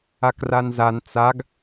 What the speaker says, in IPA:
a k r a n z a n t͡s a ɡ

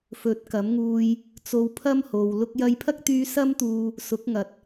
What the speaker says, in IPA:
f ɵ˨˥ t̚ k ɐ˨˥ m ŋ uː˧ j | t͡s o˧ w pʰ ɐ˥ m h o˨ w l ʊ˧ k̚ j ɐ˧ j pʰ ɐ˥ k̚ t̪ yː˧ s ɐ˥ m t̪ uː˧ | s ʊ˨˥ k̚ ŋ ɐ˨ t̚

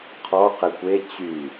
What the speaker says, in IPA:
qʰ ɔ q e kʷ e t͡ɕ y

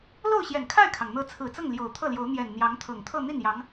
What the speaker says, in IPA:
l o˥˩ ʊ̯ ɕ j ɛ˨˩ n kʰ a˥˩ ɪ̯ kʰ ɑ˩ ŋ n̪ ɤ˧˥ t͡sʰ ɹ̩˨˩ t͡s ɤ˥˩ ŋ l j o˨˩ ʊ̯ t̪ʰ ɤ˥˩ l j o˧˥ ʊ̯ n̪ j ɛ˨˩ n n̪ j ɑ˧˥ ŋ t̪ʰ ɤ˨˩ ŋ t̪ʰ ɤ˥˧ n̪ i˥˩ n j ɑ˧˥ ŋ

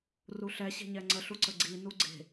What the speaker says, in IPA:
r u ɬ ɛ ɕ e̤ ɲ ɛ ŋ͡ǀ ə ɬ u ǀ ə ɡ͡ǀ i n u ɡ͡ǀ e̤

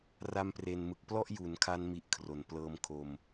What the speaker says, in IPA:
r a˧ m p r e˨˩ n m ɯ˨˩ k̚ p l ɔ˥˩ ʔ j u˩˦ n kʰ a˧ n m i˦˥ ʔ kʰ r o˩˦ n p l ɤː˧ m kʰ o˧ m

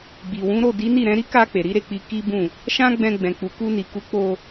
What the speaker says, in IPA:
ɡ͡b i˨ w ũ˨˦ ɾ o˦˨ d i˨˦ n i˦˨ ɾ ɛ̃˨˦ ɾ i˦ k a˧ k͡p e˨ ɾ i˨˦ ɾ e˦˨ k͡p i˧ k i˦ b ũ˦˨ | ʃ ã˦ ɡ͡b ɛ̃˧ ɡ͡b ɛ̃˨ k͡p u˨ k u˧ n i˨ k u˨˦ k͡p o˧

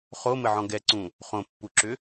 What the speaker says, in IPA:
χ o m ɘ ʕ ɔ̃ ɡ ɛ ǀ ũ | χ õ pː u ǁ ʏ

